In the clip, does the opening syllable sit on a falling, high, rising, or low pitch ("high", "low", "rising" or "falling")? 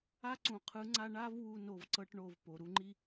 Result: high